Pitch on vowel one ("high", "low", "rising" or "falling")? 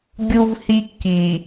high